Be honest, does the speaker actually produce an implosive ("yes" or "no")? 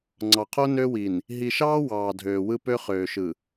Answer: no